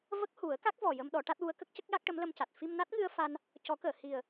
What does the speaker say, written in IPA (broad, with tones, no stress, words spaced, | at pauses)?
və˦˥k̚hu˨˩˦ə̯ka˦˥k̚ vɔ˨˩jə˧m ɗɔ˨˩˦ʈa˦˥t̚wu˧˥ə̯ kə˦˥k̚cə˦˥k̚ ja˦˥k̚ʈə˧˥mlə˧mca˨˩t̚ fi˧mna˦˥t̚ŋɨ˧ə̯ fa˧n | cɔ˨˩˦kəː˨˩˨ hi˨˩ə̯